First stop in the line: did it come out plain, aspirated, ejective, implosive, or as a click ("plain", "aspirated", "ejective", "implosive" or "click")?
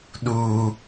implosive